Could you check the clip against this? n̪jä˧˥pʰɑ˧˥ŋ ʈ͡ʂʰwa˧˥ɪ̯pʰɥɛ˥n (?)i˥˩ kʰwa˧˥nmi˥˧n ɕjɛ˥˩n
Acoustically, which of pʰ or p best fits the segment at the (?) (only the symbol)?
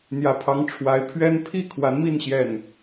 pʰ